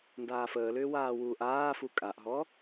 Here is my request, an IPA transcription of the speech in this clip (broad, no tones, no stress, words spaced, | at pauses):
ndaːfəːlʏː waːwuːʔaːfu kʼaʔɦɔ